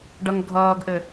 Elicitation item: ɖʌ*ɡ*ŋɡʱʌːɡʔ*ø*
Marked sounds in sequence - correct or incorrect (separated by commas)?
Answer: incorrect, incorrect